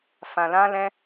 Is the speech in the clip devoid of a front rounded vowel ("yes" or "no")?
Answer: yes